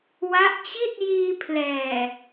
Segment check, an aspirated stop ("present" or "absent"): present